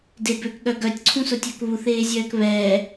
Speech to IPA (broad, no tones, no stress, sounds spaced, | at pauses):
d e b ø k ɠ œ ɡ œ tʲ ǀʰ ũ s ʊ tʲ œ k β u θ eː zʲ œː k β ɛː